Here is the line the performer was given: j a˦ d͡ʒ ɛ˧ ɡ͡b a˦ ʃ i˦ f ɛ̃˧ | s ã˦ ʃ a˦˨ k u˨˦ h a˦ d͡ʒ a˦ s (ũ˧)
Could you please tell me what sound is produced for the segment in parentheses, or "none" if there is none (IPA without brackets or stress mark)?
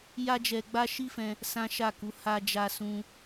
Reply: ũ˦